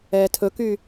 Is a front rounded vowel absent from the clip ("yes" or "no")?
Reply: no